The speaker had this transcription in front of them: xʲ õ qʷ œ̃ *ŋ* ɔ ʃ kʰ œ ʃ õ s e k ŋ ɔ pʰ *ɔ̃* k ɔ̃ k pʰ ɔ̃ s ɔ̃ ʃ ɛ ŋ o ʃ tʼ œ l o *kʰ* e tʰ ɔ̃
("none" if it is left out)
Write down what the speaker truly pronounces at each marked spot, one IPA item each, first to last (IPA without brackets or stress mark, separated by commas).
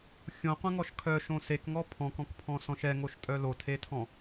ŋ, ɔ̃, tʰ